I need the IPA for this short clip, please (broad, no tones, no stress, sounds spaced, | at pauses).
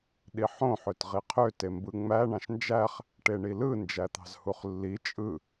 ɗ i ħ õ ħ ø t ʁ i qʰ ø t e m b ɯ ŋ͡m æ ɳ ɑ̃ ʃ n d͡ʒ æ χ | ʈ e ɳ i l ɯ n d͡ʒ æ t̪ ɑ̤ z h u χ lː i t͡ʃʼ ɯ